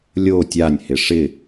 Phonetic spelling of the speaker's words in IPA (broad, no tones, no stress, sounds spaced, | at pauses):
lʲ o tʲ a nʲ h ɪ ʂ ɪ